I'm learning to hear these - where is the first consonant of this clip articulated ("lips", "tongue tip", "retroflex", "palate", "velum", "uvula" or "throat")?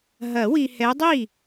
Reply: throat